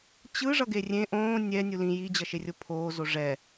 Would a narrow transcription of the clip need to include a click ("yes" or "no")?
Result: no